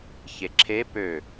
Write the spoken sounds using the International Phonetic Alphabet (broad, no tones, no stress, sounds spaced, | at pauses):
ç e ǁʰ e p ø